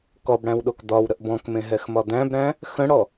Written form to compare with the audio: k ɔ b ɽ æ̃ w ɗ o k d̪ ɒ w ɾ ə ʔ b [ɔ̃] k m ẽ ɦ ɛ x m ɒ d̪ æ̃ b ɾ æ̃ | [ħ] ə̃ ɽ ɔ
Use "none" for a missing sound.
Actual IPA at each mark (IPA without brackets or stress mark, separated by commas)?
ɔ̃, x